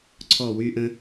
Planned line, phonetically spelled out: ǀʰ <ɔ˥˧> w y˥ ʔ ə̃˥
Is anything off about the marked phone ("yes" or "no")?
no